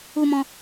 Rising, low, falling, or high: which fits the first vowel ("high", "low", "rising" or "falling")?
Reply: high